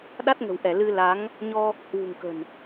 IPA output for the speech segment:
ɗ a˦˥ t̚ ŋ ə̤˨˩ w ʔ ɛ˧˩ l ɨ˧ l a˨˦ ŋ | ɲ ɔ˧ | h w ṳ˨˩ ŋ k ə̤˨˩ n

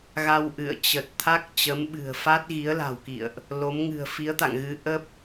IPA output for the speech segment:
ɣ a˧ w ʔ ɨ̰˧˨ ə̯ t͡ɕ ə˨˩ t̚ t̪ʰ a˦˥ k̚ t͡ɕ ə˨˦ m ɓ ɨ̤˨˩ ə̯ f a˦˥ t̚ ɣ i˨˦ ə̯ l a̤˨˩ w k ḭ˧˨ ə̯ ʔ | l o˨˦ m ŋ ɨ̤˨˩ ə̯ f i˨˦ ə̯ t̪ a̰˧˨ ŋ ɣ ɨ˨˦ ʔ ə˦˥ p̚

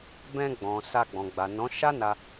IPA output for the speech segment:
b ɛ̃˧ ɡ͡b ɔ̃˨ s a˧ ɡ͡b ɔ̃˨ ɡ͡b a˨ n ɔ̃˨˦ ʃ a˦ n a˧

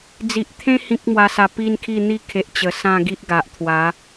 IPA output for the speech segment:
d͡z i˨ ʔ t̪ʰ ẽ˦ h ĩ˦ k̚ m w a˧ s a˧ p i˦ n kʰ i˥˧ n̪ i˦ kʰ e˨ ʔ t͡ɕ ə˨˩ s ã˥˧ ɡ i˦ ʔ ɡ a˨ ʔ t̪ʰ w a˨˦

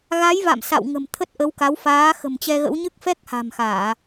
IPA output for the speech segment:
ɣ a˨˦ j v a̰˧˨ m s a̰˧˨ w ŋ ə̤˨˩ m t̪ʰ ə˦˥ t̚ ʔ ə˨˦ w k a˨˦ w f aː˨˦ x ə̤˨˩ m t͡ɕ ɛ˧ ɣ ə̰˧˥ w ɲ ɨ˦˥ k̚ f ɛ˦˥ k̚ h a̤˨˩ m x aː˧˩˨

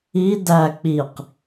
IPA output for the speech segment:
i d æ k͡p i q

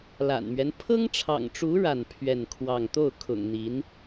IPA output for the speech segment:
l a̰˨˩ n m ɥ ɛ˦ n pʰ ɤ˥ ŋ ʈ͡ʂʰ ɑ̰˨˩ ŋ ʈ͡ʂ u˧˥ ɻ a˥˧ n pʰ ɥ ɛ˥˧ n kʰ w ɑ˥˧ ŋ t̪ o˥˩ ʊ̯ kʰ ʊ̰˨˩ ŋ n̪ i˧˥ n

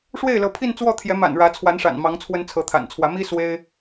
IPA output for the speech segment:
ʂ w e˥˩ ɪ̯ l ɤ˧˥ pʰ i˥˧ n t͡s w ɔ˥˩ t̪ʰ j ɛ˧˥ m a̰˨˩ n ɻ ä˧˥ t͡sʰ w a˧˥ n ʂ a̰˨˩ n m ɑ˧˥ ŋ t͡sʰ w ə˥ n t͡sʰ ɤ˧˥ t̪ʰ a̰˨˩ n t͡sʰ w ä˧˥ m i˥ s w e˥ ɪ̯

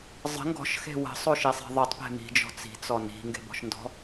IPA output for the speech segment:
zˤ ə̤ ŋ ɡ ɔ̤ ʃ x e̤ w ə̤ sˤ o ʃ i sˤ e̤ ðˤ i tˤ p e̤ m i̤ d͡ʒ ɔ̤ t͡s i̤ t͡s ɔ n i̤ ŋ ɡ e̤ b ɔ̤ ʃ n d ɔ̤

